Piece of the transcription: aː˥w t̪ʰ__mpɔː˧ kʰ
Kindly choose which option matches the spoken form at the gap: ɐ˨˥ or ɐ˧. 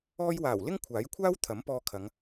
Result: ɐ˨˥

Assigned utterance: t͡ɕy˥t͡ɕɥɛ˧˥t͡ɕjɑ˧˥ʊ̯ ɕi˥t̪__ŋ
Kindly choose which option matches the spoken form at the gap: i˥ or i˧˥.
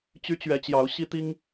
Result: i˥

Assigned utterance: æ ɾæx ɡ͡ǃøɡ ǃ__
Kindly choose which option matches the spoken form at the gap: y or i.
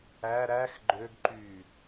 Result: y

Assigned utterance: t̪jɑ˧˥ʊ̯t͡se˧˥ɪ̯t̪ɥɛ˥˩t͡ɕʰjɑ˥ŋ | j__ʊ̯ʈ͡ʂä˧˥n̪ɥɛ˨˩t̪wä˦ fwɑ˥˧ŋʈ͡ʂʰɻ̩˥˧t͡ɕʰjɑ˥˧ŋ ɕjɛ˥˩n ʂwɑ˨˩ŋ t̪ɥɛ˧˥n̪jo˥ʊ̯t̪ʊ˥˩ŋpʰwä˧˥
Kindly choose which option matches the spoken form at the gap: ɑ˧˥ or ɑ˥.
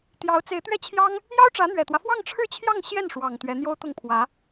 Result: ɑ˥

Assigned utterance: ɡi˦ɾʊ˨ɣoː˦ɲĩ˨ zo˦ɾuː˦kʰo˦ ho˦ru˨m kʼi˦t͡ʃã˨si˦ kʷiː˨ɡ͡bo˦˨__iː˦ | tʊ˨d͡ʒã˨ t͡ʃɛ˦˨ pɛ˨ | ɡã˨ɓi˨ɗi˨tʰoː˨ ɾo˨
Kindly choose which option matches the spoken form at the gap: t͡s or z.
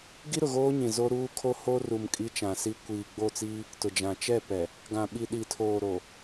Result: t͡s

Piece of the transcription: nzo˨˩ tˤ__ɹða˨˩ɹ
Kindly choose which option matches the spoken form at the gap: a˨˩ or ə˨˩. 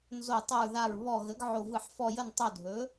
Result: ə˨˩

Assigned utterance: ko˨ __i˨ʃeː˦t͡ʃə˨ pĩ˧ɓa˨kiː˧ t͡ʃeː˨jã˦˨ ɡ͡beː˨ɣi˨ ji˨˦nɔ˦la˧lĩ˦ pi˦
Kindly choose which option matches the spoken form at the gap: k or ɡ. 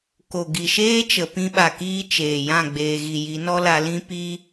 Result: ɡ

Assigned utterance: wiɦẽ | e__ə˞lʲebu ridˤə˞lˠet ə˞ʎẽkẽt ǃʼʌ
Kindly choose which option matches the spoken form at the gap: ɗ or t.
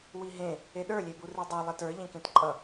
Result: ɗ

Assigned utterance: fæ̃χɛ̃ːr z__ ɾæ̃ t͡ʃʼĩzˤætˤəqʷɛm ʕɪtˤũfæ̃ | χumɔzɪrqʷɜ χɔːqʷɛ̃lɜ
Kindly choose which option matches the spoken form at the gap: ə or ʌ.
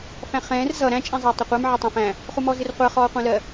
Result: ʌ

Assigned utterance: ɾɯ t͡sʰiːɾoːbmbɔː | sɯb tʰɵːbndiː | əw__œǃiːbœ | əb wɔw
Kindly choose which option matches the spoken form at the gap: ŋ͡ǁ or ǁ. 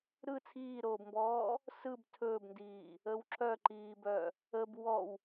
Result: ǁ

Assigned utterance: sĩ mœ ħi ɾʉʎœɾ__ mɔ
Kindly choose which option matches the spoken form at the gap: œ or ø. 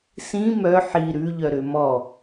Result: ø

